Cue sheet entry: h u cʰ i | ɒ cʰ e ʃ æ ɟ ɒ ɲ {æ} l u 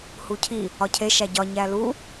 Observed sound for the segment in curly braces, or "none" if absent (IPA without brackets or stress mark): æ